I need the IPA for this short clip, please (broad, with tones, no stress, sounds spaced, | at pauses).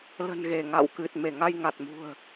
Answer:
l ə̤˨˩ n ɣ e˧˩ ŋ a̰˧˨ w k ɨ˨˩ t̚ m e˧˩ ŋ a˧ j ŋ a˨˩ t̚ m ṳ˨˩ ə̯